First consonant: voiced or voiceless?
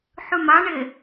voiceless